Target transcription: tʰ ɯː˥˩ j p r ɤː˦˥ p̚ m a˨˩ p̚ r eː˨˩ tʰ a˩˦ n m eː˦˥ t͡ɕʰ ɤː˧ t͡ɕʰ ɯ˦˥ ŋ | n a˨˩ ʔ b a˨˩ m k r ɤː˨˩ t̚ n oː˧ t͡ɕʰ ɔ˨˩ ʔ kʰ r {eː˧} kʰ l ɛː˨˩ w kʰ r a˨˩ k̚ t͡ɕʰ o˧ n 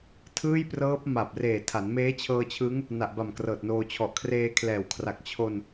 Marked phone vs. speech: correct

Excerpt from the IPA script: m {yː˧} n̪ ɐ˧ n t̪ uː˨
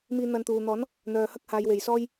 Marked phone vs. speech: incorrect: iː˧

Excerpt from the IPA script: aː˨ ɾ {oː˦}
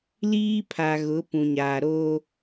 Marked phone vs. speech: correct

